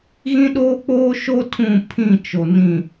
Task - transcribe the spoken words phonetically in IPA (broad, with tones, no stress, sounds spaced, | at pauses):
ɣ ĩ˦ ɗ oː˦ k͡p oː˦ ʃ o˦ tʰ ũ˦˨ pʰ ĩ˦˨ t͡ʃ o˨ n ĩ˨